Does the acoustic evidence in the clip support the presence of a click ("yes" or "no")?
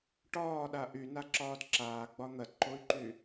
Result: yes